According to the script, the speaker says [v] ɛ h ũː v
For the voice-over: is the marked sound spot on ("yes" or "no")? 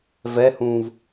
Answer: yes